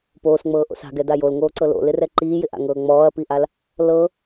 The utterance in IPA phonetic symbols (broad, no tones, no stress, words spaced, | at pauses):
poːsŋ͡mɤːʔo̰s a̤ɡɛda jolŋoːǀɤ lo̰lɪrɛ ǃiːjɪʔa̰ŋɤː ŋ͡mɔːɐ̯piʔal | lɤ